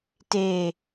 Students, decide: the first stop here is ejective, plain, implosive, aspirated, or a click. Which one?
plain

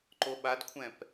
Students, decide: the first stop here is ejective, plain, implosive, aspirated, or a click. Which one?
click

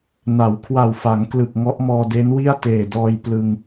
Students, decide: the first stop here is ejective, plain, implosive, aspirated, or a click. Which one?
aspirated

